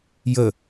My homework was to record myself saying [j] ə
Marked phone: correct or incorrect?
correct